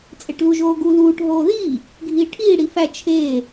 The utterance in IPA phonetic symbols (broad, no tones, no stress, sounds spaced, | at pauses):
t͡sʼ e ʈ l u ʒ oː ɡ u l uː ʈ ɦ oː ð iː | ɡʱ iː ʈʰ iː ɽ i f æ t͡ʃʰ eː